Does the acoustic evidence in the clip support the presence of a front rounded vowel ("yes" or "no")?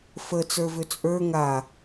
yes